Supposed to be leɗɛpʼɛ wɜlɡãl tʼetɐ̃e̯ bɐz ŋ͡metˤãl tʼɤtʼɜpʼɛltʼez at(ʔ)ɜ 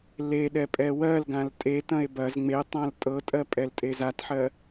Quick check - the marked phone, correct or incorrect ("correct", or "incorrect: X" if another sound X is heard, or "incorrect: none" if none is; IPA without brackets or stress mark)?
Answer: incorrect: ħ